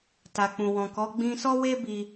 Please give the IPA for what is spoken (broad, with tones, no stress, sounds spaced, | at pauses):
t a˨ k͡p ũ˨ w ɔ̃˨ k ɔ˨˦ ɡ͡b ĩ˧ s ɔ˦ w e˦ b i˧